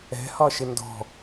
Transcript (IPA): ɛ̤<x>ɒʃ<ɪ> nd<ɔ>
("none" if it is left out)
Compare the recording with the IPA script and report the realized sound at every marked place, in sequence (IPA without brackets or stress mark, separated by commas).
h, ɪ, ɔ̤